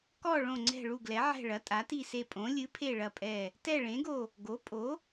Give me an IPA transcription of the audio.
kɔ˦˨ ɭõ˦˨ŋ͡ǀɛ̤˦˨ɭu˦˨ ɡlɛ˨˥ʕɛ̤˦˨ ɭɐ˨˥tʼa˨˥ti˦˨se˦˨ pʼõ˨˥ lʲɨ˨˥pʰe˦˨ ɭɐ˦˨pʼɛ˦˨ | tɛ˦˨ɭẽ˨˥ɡo˦˨ | ɡo˨˥ pʼo˨˥

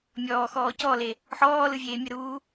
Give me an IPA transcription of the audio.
mʲɔːxɔː cɔle | ħɔːlɯvʲeː mʲəɾuː

